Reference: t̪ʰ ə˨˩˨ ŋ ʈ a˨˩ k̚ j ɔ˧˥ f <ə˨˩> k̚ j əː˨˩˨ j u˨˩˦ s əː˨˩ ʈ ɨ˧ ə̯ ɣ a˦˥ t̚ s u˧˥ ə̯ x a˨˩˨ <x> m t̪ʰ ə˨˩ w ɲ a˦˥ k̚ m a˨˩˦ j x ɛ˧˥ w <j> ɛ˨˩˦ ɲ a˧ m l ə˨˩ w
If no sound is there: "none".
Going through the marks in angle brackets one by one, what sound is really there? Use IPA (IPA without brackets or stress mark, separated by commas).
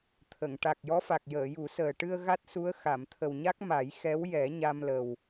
a˨˩, none, j